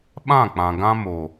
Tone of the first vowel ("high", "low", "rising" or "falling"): falling